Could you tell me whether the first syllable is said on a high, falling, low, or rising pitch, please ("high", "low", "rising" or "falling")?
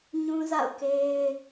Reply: high